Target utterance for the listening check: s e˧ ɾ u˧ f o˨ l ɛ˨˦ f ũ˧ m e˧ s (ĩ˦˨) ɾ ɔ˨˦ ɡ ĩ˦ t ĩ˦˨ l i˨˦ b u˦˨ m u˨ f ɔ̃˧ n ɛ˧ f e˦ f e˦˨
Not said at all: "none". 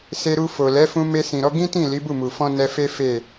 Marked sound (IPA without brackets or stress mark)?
ĩ˨